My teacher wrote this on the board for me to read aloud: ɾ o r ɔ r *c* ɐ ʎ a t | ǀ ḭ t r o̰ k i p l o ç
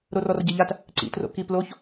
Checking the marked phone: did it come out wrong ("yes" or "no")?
yes